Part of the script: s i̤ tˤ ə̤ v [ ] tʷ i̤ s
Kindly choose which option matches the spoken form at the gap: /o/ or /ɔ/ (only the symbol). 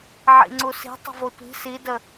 o